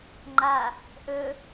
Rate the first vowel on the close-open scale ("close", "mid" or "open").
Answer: open